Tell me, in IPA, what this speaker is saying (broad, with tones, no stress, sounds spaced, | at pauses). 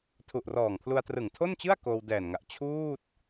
tʰ u˨˩ ʔ r ɔː˨˩ ŋ pʰ l u˧ a̯ t r ɯ˨˩ ŋ tʰ o˥˩ n t͡ɕ ɯ˥˩ a̯ k oː˧ w d ɛː˨˩ n ŋ a˨˩ ʔ t͡ɕʰ uː˥˩ t̚